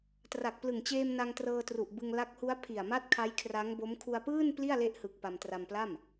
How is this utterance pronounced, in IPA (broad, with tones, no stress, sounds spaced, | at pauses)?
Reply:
t r a˨˩ k̚ p l ɯ˨˩ ŋ t͡ɕ eː˧ m n a˧ ŋ t r ɤː˧ t r u˨˩ ʔ b ɯ˧ ŋ l a˦˥ k̚ h u˦˥ a̯ pʰ i˨˩ a̯ m a˦˥ t̚ kʰ a˦˥ j kʰ r a˦˥ ŋ b o˦˥ m kʰ u˧ a̯ p ɯː˥˩ n p l i˥˩ a̯ l e˦˥ ʔ h ɯ˨˩ k̚ p a˧ m t r a˧ m p l a˥˩ m